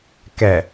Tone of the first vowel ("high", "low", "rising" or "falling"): low